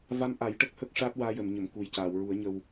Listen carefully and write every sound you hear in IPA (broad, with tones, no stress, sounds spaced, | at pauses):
v a˧ m ʔ a˨˩˦ j ʈ ə˦˥ k̚ h ə˦˥ k̚ ʂ aː˦˥ t̚ w aː˧ j ə˨˩˨ m ɲ ə˨˩˨ m k u˨˩ j c aː˨˩˨ w ɹ u˨˩˦ ə̯ ɲ ə˧ w